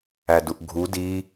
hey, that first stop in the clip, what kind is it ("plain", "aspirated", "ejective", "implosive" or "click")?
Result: plain